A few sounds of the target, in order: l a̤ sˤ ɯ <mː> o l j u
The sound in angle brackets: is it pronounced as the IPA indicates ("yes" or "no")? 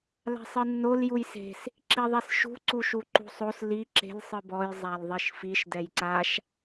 no